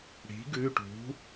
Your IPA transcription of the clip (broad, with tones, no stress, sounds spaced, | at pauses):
ɽ i̤˩˥ ɡ ʉ˩˧˩ ʈ ṳ˩˥